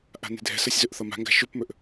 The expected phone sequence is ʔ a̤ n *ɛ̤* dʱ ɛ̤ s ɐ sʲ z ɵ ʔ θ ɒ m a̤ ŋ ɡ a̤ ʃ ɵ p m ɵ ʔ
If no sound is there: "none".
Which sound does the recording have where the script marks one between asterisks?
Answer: e̤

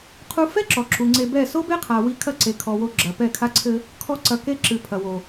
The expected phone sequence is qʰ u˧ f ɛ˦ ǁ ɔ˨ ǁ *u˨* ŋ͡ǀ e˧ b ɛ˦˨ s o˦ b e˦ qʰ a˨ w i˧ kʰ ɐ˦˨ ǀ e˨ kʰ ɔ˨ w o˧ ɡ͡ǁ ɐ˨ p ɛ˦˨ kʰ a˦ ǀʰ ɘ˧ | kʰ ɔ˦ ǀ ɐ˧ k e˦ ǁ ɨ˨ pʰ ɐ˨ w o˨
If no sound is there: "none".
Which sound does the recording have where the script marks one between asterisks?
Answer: u˨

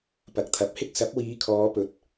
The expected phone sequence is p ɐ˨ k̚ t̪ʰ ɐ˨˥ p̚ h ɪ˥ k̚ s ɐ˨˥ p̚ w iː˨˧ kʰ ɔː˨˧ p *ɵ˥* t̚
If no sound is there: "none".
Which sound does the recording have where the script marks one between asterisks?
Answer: ɵ˨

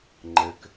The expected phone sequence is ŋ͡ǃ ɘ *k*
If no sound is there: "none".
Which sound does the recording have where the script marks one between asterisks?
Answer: k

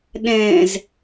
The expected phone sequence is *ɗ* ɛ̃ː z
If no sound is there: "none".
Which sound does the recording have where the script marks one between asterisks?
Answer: ɗ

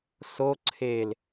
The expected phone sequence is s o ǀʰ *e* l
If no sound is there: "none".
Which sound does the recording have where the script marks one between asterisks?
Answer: e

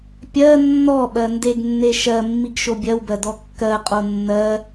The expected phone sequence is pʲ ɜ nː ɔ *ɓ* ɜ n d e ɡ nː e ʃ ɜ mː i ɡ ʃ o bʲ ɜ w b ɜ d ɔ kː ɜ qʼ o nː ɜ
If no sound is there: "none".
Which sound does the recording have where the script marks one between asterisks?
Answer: ɓ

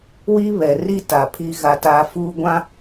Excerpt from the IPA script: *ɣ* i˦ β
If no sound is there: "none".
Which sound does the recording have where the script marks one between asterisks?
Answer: w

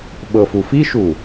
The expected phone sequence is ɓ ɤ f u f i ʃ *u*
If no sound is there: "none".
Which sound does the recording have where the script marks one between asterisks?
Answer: u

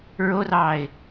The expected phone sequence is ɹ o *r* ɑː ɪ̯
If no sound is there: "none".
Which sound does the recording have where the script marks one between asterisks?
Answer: r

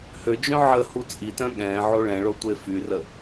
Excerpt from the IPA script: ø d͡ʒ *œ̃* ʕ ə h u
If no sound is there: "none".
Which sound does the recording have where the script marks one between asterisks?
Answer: œ̃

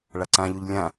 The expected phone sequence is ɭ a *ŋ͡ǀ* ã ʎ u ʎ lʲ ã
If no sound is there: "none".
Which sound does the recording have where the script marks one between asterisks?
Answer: ǀ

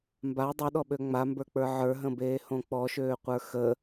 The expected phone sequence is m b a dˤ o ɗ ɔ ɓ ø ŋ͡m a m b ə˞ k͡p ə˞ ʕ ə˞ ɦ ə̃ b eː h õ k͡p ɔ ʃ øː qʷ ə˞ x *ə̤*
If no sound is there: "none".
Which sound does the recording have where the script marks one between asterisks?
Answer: ə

